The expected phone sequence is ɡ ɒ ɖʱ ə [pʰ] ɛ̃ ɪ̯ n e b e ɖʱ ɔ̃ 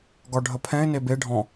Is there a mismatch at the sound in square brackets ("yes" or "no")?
no